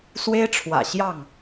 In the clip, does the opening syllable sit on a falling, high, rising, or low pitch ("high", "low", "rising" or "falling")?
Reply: high